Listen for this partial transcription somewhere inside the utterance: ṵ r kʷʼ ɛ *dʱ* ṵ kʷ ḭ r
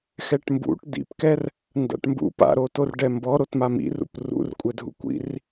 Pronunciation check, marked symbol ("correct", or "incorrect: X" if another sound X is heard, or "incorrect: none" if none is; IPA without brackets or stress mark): correct